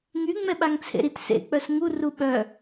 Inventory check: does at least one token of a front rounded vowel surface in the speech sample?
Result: yes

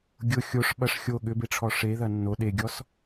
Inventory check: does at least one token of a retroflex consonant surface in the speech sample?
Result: yes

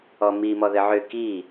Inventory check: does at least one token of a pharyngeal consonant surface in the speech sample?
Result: yes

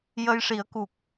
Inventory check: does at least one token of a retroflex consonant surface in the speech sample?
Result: yes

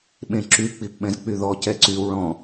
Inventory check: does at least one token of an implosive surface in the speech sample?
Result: yes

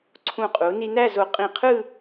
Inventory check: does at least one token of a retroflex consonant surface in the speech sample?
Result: no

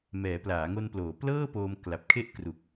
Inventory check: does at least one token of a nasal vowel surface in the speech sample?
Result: no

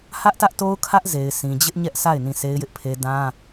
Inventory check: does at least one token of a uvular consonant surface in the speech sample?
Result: no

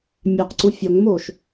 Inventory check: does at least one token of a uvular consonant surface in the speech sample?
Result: yes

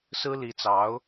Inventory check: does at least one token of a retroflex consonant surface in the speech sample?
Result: no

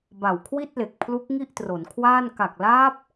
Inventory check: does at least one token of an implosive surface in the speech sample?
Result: no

